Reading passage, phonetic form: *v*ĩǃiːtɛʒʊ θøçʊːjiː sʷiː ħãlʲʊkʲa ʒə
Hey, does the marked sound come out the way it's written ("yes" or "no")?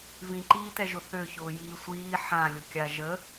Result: yes